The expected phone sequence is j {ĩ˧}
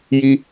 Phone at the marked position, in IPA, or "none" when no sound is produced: i˧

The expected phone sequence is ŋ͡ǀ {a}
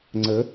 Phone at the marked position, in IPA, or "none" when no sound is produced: ə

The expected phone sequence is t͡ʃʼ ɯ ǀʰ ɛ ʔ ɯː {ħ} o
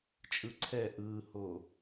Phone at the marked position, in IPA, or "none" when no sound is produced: h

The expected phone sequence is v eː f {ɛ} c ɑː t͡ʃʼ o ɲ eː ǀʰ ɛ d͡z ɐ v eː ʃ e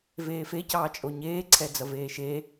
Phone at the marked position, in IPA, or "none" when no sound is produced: e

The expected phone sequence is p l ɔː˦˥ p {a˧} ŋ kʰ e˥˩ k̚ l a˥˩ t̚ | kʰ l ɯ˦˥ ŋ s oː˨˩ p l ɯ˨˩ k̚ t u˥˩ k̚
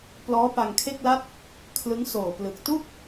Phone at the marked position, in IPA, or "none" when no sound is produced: a˧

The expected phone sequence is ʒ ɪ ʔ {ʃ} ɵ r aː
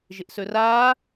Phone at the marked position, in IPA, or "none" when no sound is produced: s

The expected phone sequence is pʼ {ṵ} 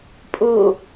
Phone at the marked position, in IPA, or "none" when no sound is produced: u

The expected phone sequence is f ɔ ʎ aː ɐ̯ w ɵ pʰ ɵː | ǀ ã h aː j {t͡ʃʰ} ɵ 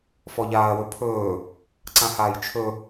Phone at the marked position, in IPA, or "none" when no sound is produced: t͡ʃʰ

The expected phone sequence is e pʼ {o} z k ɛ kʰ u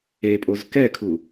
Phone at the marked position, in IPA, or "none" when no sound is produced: o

